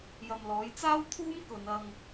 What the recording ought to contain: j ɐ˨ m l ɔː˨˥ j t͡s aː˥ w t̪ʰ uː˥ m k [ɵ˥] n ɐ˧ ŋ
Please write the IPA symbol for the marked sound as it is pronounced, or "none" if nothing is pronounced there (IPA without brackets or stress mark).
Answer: ɵ˨˧